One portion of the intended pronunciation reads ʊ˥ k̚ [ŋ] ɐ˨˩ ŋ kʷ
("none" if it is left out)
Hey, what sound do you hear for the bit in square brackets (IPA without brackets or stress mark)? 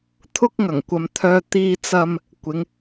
ŋ